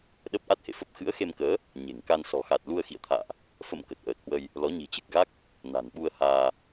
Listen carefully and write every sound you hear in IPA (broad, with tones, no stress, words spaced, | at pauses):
ɗə˦˥p̚ ʔa˦˥t̚hḛ˧˨fə˦˥p̚ xɨ̰˧˥ə̯xe˧mkəː˨˦ | ɲe̤˨˩ŋka˧n sɔ̤˨˩xa˨˩t̚ lu˧ə̯xḭ˧˨ə̯t̪ʰa̰ː˧˨ʔ | fə̰˧˨m kə˨˩t̚ʔəː˨˩t̚hwə˧j | lɔ˨˦ ɲi̤˨˩t͡ɕɨ˨˩k̚ɣa˦˥k̚ | na̤˨˩nɓu˧ə̯haː˧